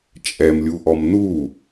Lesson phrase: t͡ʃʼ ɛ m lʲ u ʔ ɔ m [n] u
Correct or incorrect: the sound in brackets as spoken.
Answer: correct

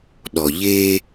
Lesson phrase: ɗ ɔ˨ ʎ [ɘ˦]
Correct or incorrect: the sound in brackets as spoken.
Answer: incorrect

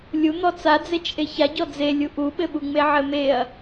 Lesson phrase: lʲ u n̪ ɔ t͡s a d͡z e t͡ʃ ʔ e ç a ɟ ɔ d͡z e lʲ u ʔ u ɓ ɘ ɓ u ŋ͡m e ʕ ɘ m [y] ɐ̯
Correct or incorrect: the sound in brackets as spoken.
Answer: incorrect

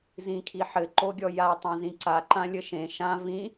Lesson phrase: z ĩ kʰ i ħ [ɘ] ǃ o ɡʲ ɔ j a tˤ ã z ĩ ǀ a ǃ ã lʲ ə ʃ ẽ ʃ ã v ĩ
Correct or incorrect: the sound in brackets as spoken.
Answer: correct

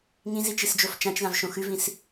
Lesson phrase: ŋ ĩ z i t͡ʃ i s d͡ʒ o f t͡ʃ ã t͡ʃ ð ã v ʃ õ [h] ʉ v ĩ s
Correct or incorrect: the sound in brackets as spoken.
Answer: incorrect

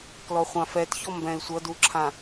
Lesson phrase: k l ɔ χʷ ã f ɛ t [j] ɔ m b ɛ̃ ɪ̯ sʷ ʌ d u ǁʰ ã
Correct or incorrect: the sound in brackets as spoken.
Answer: incorrect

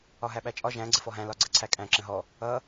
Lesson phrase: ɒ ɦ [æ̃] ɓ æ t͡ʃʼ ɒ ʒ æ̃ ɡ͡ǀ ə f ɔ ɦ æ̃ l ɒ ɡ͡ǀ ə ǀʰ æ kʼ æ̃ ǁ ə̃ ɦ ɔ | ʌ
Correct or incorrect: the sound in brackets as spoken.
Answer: incorrect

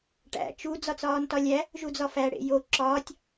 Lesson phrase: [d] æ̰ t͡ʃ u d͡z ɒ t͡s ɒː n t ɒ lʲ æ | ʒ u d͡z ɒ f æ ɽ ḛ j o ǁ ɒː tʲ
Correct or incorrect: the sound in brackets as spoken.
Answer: incorrect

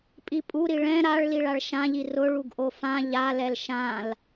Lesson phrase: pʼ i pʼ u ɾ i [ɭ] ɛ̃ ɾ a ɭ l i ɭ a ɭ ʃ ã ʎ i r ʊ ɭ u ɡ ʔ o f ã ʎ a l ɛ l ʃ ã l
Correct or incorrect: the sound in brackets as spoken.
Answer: correct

